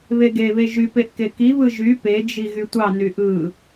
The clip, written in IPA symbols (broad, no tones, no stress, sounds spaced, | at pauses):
β e ɡ e β e ʒ y p e ʔ k e k i β ɯ ʒ y p e d͡ʒ i ɣ y tʷ ɑ n y ʔ ɯ